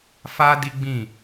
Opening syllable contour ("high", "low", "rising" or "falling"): high